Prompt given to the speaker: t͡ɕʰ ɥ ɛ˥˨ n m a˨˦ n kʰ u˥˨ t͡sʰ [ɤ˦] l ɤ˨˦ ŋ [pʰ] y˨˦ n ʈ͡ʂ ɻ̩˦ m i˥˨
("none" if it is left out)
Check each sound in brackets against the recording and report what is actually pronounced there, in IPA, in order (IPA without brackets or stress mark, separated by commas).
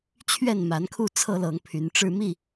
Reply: ɤ˦, pʰ